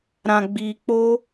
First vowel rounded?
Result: no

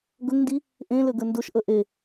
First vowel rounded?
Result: yes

